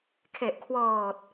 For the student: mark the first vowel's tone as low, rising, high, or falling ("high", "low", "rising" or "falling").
low